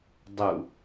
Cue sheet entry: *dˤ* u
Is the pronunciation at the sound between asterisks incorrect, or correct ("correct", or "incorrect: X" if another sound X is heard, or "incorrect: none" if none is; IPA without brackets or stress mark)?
correct